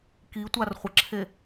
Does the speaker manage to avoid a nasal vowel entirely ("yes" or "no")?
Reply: yes